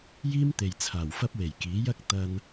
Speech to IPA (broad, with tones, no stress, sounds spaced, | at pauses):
j iː˥ m t̪ e˨ j t͡sʰ aː˨˩ w f ɐ˥ p̚ w e˨˩ j k iː˨˥ j ɐ˥ k̚ t̪ ɐ˧ n